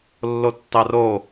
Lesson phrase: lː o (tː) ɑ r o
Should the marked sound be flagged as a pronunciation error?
no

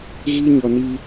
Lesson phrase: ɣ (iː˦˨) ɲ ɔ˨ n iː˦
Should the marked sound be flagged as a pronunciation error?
yes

